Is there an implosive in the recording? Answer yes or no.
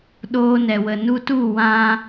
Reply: yes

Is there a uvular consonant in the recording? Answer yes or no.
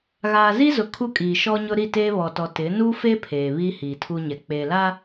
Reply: no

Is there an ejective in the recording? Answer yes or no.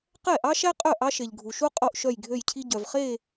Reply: yes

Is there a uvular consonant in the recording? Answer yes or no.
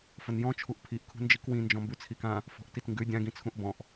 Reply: no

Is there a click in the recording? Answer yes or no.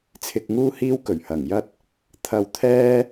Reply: no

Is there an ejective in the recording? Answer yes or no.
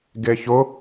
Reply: no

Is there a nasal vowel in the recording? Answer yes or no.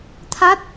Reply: no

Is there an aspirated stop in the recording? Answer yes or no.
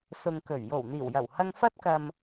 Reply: no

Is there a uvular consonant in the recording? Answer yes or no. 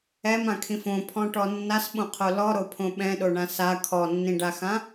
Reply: yes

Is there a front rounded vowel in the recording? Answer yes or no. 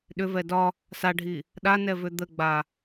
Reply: yes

